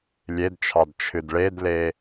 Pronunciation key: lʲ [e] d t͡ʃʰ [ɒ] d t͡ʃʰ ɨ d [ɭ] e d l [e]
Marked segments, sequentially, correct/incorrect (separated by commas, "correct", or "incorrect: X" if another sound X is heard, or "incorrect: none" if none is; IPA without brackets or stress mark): correct, incorrect: ɑ, correct, correct